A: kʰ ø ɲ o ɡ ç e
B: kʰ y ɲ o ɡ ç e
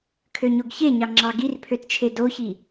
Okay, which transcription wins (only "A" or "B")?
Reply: A